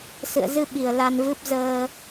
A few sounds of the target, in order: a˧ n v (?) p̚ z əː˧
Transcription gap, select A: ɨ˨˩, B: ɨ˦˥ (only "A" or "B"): B